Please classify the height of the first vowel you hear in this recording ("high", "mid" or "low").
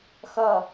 mid